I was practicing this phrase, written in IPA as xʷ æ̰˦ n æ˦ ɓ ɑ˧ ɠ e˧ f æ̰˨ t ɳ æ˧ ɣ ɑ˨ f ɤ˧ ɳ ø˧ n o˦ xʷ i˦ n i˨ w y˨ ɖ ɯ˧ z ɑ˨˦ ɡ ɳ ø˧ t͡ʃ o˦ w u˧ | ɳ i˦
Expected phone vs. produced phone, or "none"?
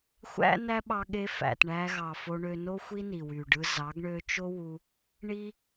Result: ɤ˧ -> o˧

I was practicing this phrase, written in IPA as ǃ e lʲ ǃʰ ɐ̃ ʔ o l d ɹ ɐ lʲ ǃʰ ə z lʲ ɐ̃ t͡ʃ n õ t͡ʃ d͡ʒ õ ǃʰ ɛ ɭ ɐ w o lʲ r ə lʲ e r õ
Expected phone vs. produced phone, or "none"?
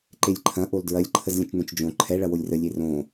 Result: none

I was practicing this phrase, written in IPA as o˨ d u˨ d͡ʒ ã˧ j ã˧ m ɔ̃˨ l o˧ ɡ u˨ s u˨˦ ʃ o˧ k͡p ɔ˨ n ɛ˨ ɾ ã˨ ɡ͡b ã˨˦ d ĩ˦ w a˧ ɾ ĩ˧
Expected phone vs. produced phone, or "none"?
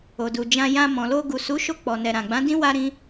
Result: none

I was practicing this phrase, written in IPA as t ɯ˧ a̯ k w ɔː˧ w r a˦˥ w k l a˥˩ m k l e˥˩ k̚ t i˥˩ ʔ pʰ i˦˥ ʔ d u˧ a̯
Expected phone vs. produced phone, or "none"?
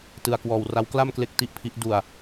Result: none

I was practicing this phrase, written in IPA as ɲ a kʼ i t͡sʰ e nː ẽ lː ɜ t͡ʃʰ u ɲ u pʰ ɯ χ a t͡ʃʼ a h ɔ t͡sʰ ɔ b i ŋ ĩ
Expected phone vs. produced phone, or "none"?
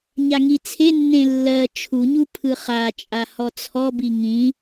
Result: kʼ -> ŋ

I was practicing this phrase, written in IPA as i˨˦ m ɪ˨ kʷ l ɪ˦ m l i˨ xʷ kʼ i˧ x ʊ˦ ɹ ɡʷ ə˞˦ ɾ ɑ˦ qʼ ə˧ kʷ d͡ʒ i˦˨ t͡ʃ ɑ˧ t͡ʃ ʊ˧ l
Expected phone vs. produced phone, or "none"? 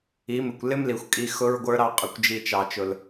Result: none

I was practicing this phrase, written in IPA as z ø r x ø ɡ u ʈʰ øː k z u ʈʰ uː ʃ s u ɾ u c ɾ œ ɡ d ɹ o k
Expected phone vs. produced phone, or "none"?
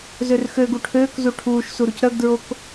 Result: none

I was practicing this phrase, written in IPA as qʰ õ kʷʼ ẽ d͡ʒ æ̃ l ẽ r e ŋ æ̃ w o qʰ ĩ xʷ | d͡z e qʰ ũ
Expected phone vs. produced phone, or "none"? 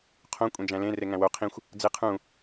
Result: none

